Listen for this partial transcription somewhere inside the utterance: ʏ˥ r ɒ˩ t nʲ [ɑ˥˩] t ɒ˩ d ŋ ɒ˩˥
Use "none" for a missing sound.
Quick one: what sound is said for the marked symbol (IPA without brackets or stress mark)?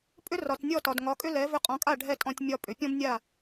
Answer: ɔ˥˩